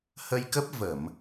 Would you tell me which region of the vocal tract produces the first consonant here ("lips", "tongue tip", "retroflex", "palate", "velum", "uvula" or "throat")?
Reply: throat